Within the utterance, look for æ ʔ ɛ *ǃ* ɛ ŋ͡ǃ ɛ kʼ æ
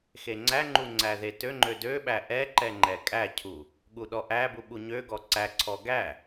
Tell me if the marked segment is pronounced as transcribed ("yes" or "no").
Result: yes